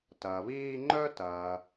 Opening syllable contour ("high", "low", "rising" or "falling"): low